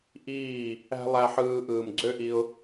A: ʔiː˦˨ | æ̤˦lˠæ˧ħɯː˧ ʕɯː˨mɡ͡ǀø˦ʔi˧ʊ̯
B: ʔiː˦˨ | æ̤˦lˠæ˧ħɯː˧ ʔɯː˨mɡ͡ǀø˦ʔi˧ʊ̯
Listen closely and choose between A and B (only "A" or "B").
B